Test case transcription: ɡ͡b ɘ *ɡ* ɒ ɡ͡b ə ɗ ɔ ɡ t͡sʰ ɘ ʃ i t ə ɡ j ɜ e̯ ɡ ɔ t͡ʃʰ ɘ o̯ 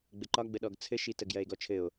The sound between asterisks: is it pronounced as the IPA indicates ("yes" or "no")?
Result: no